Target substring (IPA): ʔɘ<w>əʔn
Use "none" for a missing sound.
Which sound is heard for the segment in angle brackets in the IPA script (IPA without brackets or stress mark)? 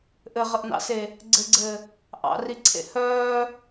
ʁ